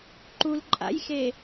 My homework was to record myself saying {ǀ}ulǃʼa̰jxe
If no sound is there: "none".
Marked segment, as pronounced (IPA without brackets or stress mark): ǃ